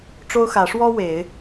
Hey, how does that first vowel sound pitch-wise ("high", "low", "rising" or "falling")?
high